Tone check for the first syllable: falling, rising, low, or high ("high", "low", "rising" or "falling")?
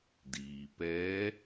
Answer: low